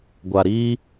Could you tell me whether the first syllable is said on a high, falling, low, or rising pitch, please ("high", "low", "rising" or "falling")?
low